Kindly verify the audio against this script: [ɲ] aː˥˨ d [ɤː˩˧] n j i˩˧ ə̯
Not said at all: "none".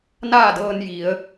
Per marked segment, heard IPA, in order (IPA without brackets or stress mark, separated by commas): n, ɤː˧